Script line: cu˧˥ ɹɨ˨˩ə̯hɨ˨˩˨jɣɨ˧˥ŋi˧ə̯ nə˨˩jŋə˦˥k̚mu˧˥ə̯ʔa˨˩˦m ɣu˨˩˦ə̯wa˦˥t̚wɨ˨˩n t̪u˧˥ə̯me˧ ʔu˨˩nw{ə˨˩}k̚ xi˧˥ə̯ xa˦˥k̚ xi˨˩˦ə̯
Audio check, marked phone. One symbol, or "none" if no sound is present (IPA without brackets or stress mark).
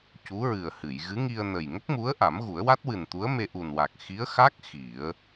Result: a˨˩